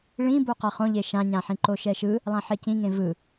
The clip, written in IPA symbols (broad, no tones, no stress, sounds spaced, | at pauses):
ɭ ĩ b o q a χ õ ʎ e ʃ ã ɲ ã ħ ĩ ǃ o ʃ ɛ ʃ ɯ | lˠ ã ħ e c ĩ ŋ ẽ v ɯ